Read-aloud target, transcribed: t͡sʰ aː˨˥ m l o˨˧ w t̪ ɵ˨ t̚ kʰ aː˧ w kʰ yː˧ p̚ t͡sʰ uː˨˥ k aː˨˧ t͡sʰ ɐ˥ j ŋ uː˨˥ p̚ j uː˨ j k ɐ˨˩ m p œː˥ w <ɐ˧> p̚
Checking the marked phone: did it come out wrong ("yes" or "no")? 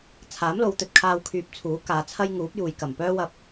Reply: no